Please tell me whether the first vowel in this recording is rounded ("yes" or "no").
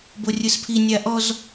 yes